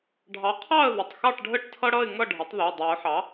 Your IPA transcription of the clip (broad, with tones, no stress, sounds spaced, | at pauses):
ɖʱ ɑ˩˥ qʰ ɑ˥˨ ə̯ ð ə˩˧˩ tˤ x ɑ˥˨ ʈ ɖʱ ə˥˨ ʈ tʰ ʌ˦ ɽ ʌ˥˨ ɪ̯ ŋ ʌ˥˨ ɖʱ ə˩˥ tˤ ð o˩˧˩ dˤ ʉ˨˩˦ ʊ̯ ħ ɑ˩˥